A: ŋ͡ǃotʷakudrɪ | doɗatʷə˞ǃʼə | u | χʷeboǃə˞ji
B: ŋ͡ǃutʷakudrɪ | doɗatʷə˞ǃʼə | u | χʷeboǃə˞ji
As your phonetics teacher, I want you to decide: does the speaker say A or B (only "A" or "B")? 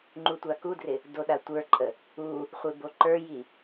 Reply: B